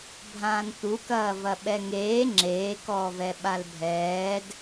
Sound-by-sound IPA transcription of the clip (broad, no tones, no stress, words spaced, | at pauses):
bʱãːnt̪ukɐː vɐɓɛŋeː ŋ͡ǁeːkɔːvɛ ɓalbʱɛːd